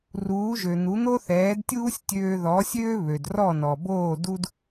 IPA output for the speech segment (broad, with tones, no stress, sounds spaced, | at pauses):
r uː˩˥ ʒ ø˩ n̪ u˩˥ n̪ o˥ θ ɛː˩˥ d tʲ uː˥ sʲ tʲ øː˧ ð ɔ˩˥ sʲ øː˥ β ø˩ d r ɔ˥˩ n ɔ˩ b oː˥˩ d u˥ d